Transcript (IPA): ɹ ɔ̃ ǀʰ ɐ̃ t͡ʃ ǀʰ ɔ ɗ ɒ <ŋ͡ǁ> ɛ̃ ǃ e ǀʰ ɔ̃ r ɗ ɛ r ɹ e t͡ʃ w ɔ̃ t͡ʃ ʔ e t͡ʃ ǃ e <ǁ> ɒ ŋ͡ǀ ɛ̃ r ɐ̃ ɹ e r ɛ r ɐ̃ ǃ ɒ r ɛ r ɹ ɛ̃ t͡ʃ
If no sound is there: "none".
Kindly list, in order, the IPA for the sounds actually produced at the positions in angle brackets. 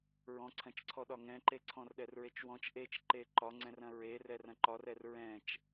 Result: ŋ, ǃ

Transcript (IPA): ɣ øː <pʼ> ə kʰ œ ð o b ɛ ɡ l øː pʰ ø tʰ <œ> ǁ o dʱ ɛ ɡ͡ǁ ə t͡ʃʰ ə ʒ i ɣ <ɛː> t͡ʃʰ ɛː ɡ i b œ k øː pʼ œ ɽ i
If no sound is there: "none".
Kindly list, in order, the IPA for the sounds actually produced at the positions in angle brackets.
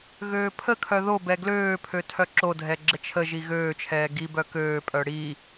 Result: pʰ, œ, øː

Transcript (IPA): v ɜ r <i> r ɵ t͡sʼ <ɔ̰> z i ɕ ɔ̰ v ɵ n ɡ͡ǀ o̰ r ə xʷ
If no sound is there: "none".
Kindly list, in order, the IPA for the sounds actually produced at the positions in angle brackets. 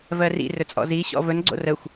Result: ḭ, ɔ̰

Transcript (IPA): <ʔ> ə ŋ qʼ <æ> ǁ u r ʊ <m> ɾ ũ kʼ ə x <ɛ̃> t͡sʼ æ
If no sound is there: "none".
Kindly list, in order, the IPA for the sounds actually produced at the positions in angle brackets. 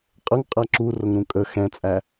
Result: qʼ, æ, ŋ, ɛ̃

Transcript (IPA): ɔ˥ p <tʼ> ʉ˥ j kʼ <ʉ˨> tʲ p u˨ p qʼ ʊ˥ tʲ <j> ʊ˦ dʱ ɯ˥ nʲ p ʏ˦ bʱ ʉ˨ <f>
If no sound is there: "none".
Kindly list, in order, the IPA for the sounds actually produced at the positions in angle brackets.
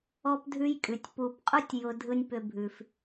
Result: dʱ, ʉ˨, j, f

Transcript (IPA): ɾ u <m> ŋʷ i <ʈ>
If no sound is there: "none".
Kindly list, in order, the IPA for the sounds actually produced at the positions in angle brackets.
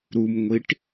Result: m, ʈ

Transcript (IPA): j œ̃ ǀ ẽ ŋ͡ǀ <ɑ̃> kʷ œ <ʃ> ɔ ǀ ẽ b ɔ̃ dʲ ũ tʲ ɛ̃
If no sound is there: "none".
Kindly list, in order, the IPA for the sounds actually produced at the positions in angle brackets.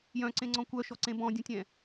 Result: ɔ̃, ʃ

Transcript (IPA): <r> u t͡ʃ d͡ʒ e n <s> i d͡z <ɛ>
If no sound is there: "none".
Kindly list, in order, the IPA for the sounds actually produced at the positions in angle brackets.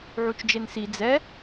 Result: ʕ, s, ɛ

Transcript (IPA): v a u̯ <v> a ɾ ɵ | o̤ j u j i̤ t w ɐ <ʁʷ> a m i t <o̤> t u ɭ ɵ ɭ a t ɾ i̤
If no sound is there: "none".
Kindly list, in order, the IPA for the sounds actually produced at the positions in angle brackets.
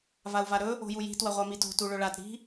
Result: v, ʁʷ, o̤

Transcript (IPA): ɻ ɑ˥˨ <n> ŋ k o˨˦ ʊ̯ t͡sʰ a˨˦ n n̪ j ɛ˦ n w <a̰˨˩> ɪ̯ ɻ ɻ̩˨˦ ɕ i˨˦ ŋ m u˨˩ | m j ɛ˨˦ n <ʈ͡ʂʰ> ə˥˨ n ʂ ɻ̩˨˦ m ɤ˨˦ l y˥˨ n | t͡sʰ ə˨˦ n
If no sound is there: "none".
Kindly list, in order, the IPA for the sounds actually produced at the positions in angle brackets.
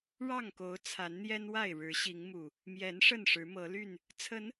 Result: none, a˥˨, ʂ

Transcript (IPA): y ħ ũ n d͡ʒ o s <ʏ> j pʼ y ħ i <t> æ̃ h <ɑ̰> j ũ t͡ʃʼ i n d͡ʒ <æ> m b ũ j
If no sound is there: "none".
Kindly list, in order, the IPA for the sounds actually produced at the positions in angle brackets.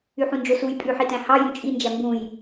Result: u, t, ɑ, æ

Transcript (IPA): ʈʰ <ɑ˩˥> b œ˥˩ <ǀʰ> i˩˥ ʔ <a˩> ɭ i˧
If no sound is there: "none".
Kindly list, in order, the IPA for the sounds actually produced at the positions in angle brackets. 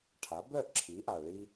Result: a˩˥, ǁʰ, a˩

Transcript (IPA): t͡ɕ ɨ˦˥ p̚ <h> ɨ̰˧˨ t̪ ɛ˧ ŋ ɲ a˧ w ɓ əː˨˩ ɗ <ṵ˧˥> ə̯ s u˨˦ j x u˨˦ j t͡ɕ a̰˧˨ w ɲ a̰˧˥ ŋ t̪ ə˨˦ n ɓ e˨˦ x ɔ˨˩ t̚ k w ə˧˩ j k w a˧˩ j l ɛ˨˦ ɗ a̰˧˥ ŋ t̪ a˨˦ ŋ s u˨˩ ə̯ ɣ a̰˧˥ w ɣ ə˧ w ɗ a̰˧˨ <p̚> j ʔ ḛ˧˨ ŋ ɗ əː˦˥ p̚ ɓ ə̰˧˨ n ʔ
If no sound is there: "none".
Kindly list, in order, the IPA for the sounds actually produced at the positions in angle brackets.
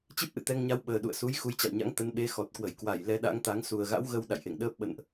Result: ʔ, ṵ˧˨, none

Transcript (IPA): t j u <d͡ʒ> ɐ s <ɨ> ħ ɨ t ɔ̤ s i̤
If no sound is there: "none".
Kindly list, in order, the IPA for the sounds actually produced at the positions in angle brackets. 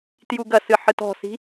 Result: ɡ, ɨ

